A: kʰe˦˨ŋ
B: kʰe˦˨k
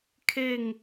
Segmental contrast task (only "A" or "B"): A